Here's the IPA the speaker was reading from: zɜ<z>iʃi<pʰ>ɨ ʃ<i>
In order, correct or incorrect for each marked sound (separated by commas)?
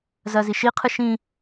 correct, incorrect, incorrect